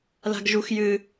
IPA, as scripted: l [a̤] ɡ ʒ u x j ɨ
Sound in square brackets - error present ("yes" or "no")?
no